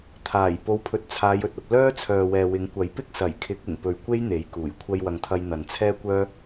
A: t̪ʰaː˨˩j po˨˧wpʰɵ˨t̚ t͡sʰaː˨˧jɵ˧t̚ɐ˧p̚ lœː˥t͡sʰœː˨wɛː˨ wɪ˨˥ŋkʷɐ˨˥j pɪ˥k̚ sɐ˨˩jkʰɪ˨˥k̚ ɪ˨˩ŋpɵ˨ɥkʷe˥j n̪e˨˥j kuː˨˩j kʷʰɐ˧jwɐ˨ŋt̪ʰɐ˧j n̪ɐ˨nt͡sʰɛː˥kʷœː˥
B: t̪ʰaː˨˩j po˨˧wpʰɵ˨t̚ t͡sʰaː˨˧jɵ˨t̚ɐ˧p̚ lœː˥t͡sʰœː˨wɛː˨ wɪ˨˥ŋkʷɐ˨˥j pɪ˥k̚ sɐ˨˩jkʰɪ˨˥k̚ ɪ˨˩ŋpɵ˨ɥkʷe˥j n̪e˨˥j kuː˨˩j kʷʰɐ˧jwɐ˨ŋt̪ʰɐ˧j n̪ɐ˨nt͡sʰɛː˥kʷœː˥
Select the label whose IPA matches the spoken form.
B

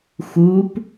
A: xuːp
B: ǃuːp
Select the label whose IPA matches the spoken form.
A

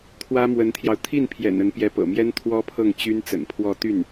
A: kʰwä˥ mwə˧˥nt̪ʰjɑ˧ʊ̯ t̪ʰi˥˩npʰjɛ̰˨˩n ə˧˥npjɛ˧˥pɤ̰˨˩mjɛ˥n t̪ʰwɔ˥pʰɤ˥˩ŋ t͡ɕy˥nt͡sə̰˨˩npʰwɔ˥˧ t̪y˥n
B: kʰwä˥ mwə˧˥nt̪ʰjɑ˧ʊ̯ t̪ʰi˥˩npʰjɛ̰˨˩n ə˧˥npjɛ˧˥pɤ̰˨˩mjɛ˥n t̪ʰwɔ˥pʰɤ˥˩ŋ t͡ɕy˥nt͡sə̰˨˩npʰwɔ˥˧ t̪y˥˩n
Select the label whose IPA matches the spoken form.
B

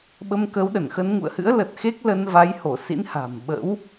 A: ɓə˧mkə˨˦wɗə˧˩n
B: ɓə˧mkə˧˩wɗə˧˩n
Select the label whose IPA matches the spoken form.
A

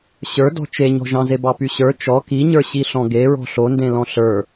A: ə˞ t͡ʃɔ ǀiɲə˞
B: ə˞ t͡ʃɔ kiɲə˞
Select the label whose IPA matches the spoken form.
B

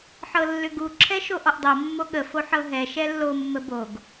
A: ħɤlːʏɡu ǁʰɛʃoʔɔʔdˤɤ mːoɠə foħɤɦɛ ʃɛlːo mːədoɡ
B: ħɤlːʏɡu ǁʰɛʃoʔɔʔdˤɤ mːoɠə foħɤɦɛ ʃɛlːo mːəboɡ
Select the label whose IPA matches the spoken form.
B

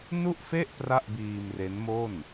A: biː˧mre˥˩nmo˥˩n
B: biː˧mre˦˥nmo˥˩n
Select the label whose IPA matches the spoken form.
B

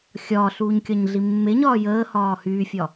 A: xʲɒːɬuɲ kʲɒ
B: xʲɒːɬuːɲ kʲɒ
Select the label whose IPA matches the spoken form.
B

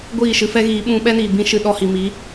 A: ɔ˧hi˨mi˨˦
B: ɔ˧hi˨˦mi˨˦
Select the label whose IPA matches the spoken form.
A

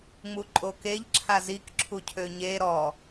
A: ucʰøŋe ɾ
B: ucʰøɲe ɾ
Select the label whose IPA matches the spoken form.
B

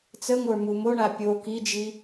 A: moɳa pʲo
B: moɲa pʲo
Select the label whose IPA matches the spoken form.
A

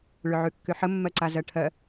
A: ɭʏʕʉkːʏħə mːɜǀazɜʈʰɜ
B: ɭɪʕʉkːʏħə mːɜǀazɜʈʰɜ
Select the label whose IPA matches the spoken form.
A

